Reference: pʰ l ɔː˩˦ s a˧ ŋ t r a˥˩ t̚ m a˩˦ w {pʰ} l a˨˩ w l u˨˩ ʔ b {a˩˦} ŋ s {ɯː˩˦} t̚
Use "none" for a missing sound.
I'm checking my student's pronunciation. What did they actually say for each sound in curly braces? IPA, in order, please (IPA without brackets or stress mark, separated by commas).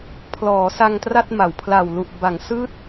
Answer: pʰ, a˩˦, ɯː˥˩